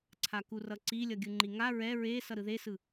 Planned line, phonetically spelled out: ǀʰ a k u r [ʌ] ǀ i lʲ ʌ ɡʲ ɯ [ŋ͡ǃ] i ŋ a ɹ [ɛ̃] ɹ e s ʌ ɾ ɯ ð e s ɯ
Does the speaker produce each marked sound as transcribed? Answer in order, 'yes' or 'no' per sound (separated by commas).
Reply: yes, yes, no